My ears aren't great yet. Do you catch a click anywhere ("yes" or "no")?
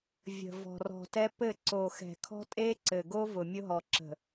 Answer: yes